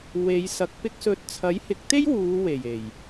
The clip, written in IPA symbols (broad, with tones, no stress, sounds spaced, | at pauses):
w e˨˧ j s ɐ˨˥ k̚ p ɪ˧ k̚ s ɵ˨˥ t̚ t͡sʰ ɐ˨˥ j h ɪ˨˥ k̚ t̪ e˥ j w uː˨˧ w e˨˩ j e˨˩ j